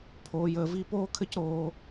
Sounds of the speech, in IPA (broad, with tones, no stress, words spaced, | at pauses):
pʰoː˦jəː˦vi˥ poː˥kʰɘ˥cɾoː˦